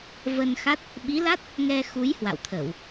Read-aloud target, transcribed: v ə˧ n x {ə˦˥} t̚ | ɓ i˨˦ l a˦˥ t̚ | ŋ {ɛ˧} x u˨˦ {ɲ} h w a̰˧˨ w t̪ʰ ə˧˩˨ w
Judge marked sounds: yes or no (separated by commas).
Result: no, yes, no